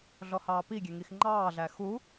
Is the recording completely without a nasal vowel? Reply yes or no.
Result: yes